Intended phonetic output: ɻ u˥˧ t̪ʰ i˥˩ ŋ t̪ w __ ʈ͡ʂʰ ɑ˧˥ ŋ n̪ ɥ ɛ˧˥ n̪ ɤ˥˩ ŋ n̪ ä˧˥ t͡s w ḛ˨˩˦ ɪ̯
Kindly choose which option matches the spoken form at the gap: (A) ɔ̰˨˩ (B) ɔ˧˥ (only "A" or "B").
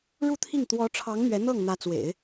B